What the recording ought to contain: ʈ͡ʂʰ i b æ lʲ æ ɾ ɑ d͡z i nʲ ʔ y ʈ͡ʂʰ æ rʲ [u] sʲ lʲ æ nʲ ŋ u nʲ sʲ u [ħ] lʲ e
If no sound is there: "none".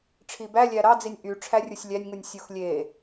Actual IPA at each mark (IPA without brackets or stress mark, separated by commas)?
u, x